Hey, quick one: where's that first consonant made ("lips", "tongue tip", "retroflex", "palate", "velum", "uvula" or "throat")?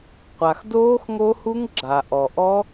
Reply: uvula